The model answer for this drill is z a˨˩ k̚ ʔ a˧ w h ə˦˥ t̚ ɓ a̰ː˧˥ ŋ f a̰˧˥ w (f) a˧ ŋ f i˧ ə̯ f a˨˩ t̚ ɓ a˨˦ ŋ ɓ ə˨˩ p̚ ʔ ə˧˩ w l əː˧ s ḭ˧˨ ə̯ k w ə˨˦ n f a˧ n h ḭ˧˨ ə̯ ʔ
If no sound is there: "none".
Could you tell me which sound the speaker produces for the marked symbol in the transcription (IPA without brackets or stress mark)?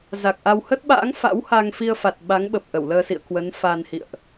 h